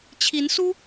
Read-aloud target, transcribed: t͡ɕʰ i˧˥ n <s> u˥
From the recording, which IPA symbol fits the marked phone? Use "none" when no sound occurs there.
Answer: s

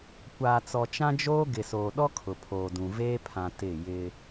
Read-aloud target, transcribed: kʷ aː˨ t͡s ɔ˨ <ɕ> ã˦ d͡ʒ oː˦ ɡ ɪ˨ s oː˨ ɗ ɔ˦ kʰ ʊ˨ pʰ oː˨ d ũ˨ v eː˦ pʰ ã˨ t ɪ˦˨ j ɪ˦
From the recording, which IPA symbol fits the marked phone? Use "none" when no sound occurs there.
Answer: t͡ʃ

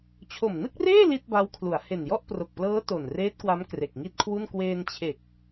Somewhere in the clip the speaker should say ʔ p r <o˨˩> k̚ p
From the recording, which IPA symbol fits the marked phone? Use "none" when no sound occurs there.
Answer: o˨˩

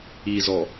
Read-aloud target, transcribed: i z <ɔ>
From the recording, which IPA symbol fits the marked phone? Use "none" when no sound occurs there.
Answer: ɔ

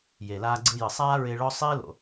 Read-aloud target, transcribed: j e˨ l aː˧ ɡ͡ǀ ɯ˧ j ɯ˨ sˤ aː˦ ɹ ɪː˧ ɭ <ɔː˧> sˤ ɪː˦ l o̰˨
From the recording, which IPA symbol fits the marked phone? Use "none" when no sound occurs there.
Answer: ɔ˧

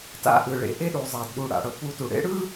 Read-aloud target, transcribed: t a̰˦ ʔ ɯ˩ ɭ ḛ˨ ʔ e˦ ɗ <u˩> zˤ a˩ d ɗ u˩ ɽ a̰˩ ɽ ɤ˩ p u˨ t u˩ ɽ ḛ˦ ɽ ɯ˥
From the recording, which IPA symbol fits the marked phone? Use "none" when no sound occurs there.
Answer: u˩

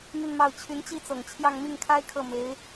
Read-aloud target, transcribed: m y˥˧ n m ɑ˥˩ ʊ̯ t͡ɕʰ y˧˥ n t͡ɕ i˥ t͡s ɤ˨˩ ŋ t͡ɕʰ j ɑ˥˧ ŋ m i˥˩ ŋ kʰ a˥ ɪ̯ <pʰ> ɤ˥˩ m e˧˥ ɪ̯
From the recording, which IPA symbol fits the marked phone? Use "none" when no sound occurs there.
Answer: kʰ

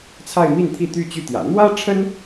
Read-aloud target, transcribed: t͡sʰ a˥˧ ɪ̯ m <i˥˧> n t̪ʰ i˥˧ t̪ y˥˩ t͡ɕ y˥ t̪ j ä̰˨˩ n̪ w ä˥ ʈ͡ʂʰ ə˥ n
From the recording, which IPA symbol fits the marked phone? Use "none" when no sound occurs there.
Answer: i˥˧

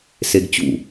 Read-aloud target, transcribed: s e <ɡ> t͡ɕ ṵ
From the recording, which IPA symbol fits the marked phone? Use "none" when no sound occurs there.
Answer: ɡ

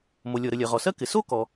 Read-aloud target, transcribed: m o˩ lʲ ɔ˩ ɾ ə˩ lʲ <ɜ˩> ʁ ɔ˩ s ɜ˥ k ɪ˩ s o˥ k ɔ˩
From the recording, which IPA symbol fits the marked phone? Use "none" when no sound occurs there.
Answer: ɜ˩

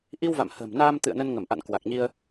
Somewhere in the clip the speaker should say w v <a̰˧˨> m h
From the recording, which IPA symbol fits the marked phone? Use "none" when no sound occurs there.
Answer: a̰˧˨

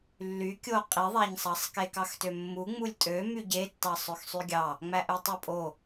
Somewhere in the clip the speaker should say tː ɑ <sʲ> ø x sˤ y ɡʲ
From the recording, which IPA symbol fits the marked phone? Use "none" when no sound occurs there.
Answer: sˤ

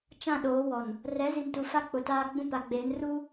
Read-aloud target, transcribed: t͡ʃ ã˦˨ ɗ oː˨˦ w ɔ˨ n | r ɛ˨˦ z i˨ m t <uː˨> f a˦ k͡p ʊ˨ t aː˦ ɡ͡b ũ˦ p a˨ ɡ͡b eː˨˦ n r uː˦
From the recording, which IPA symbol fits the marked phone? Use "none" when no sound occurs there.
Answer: u˨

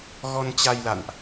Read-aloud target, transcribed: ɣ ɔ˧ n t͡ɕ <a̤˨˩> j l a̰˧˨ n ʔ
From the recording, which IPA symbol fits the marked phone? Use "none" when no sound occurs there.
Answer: a˧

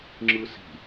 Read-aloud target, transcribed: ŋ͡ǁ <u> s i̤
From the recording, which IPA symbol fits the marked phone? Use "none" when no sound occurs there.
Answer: ɯ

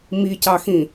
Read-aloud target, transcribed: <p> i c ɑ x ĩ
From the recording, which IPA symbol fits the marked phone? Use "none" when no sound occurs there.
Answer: m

